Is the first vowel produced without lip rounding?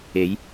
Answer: yes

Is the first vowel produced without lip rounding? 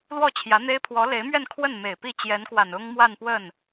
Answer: no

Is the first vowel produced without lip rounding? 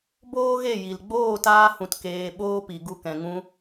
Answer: no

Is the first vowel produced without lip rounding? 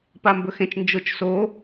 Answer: yes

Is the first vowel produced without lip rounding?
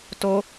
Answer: no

